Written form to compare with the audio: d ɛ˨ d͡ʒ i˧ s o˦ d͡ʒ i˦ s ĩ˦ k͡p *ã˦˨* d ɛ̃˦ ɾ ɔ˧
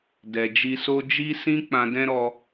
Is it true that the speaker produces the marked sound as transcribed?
no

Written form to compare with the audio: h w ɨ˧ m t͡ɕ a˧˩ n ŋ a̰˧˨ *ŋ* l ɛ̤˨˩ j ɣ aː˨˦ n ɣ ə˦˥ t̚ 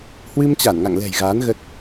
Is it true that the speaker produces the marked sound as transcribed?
yes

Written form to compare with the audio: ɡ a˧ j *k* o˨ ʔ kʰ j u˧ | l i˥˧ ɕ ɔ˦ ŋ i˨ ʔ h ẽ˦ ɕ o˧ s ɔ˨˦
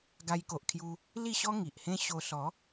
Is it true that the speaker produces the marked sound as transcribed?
yes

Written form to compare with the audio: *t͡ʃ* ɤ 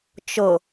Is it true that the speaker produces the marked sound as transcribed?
yes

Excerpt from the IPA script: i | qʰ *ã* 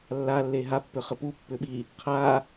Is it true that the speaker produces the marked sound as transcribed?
no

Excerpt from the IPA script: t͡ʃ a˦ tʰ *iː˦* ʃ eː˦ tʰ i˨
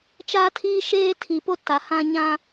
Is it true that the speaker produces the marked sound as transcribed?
yes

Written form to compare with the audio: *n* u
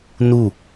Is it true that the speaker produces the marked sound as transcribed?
yes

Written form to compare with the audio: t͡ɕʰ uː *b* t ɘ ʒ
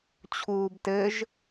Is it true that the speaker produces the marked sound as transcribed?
yes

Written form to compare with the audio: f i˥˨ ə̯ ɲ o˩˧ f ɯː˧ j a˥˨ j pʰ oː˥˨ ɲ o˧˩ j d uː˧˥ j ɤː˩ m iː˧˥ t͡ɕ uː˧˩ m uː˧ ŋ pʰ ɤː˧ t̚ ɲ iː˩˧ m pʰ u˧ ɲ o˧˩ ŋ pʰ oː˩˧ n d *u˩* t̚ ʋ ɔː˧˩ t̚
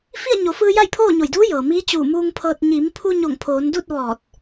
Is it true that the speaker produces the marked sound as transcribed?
no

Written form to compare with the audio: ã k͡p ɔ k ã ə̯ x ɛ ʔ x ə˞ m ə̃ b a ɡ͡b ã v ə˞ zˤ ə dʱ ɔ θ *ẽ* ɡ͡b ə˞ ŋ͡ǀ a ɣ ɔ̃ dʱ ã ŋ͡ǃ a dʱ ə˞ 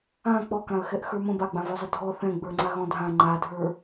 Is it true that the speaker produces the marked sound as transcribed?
no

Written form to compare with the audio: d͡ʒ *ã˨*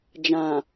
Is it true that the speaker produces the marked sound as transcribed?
yes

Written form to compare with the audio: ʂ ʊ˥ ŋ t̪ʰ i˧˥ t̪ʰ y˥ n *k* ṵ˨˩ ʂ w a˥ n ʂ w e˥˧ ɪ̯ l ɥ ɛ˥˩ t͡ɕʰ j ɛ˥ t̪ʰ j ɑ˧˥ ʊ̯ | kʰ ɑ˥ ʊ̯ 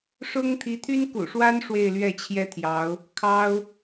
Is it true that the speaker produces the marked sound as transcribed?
yes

